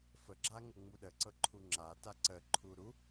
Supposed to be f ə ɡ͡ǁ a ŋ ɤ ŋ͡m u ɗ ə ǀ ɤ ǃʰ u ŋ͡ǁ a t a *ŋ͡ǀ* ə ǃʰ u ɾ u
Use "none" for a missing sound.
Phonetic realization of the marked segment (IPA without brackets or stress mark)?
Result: ǀ